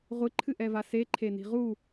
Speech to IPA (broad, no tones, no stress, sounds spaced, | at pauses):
ʁʷ ɨ ǃʰ ɨ ʔ ɛ v a s e ǃʰ e n i̤ ʁ u